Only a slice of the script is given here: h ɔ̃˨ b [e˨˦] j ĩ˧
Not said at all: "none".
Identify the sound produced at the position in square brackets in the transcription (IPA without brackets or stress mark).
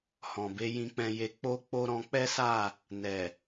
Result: e˨˦